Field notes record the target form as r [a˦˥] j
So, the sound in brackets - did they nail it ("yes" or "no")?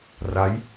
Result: yes